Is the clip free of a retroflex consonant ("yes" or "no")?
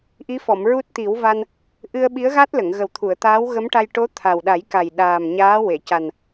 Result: no